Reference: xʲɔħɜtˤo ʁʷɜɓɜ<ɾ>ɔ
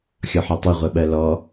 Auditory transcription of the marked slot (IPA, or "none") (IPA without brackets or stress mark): l